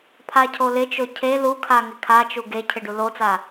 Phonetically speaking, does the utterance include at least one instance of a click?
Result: no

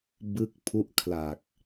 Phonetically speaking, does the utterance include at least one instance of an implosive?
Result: no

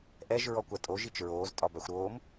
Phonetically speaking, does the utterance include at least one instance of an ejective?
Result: yes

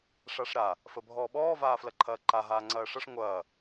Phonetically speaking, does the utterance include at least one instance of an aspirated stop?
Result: yes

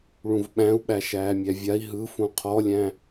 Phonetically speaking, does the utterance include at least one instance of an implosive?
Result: yes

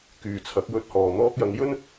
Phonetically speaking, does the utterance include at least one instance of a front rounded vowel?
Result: yes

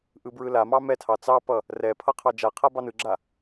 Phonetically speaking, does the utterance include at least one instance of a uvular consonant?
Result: yes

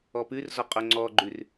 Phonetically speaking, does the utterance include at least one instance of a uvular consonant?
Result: yes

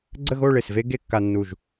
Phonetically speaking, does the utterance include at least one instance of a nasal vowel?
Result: no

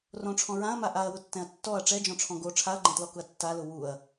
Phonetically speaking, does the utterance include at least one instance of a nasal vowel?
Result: yes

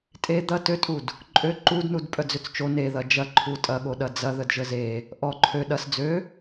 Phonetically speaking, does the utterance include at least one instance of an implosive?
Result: yes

